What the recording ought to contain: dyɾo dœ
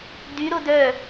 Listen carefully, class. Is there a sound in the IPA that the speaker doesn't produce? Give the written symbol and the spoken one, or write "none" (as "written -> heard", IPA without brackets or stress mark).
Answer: none